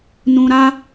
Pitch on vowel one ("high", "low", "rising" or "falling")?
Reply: low